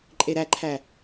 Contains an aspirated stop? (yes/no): yes